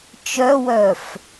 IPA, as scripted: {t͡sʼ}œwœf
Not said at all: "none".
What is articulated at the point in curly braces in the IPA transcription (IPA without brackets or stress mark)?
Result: t͡ʃ